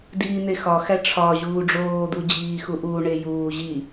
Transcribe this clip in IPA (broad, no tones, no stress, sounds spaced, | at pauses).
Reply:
d iː n̪ e x ɒ x æ ʈ͡ʂʰ ɒ ʑ uː ɖ͡ʐ oː d̪ u d͡ʑ iː x u ʔ uː ɳ e j uː ʑ i